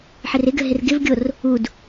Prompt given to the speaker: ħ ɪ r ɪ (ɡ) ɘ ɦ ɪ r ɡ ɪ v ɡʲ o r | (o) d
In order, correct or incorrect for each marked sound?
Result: correct, incorrect: u

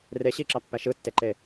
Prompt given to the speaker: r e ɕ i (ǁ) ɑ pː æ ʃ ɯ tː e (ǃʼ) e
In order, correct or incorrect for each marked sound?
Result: correct, incorrect: ǃ

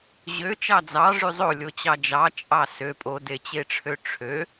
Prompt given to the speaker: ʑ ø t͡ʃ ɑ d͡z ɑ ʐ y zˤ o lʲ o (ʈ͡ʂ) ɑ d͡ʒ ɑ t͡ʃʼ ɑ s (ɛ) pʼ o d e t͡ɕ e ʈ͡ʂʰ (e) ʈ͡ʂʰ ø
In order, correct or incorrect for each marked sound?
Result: incorrect: t͡ɕ, incorrect: ø, incorrect: ø

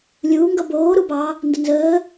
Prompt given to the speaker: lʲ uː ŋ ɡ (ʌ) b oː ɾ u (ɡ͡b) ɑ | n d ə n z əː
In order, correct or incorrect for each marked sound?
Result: correct, incorrect: b

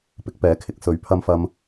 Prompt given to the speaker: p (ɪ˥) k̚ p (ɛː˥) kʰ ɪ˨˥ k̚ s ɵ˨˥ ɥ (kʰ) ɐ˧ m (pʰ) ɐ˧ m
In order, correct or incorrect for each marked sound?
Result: incorrect: ɪ˨˥, incorrect: ɛː˨˥, incorrect: pʰ, incorrect: f

